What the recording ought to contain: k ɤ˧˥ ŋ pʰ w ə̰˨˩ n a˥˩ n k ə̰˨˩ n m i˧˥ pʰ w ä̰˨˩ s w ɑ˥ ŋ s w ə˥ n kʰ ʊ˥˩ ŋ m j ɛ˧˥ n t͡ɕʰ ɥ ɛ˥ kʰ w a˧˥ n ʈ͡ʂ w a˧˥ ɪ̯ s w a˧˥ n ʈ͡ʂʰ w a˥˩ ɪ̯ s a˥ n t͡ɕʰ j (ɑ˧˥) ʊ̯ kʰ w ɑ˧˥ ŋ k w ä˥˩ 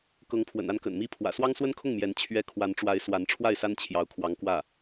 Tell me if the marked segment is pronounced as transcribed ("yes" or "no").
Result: yes